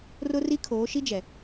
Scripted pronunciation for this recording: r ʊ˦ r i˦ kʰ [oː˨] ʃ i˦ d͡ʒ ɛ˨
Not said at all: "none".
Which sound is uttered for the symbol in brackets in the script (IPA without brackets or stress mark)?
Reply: oː˨˦